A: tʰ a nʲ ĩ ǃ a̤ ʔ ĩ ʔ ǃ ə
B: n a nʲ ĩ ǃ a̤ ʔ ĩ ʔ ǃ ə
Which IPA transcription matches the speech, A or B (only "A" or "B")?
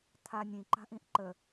A